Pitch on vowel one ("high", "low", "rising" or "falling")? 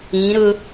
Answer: rising